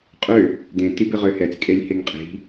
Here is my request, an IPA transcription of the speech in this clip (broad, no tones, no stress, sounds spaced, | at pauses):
qʼ ø | d ẽ t i b ɪ ʁ ø h ɛ t͡s kʼ e lʲ h e ŋ qʼ i̤